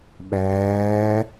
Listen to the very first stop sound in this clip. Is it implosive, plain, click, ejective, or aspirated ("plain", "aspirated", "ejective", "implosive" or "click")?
implosive